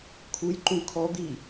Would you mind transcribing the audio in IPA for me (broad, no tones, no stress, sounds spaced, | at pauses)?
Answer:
kʰ u j ǃ ũ kʰ ɔ d̪ i